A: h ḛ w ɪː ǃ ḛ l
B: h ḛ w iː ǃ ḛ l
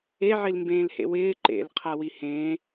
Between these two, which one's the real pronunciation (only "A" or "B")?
A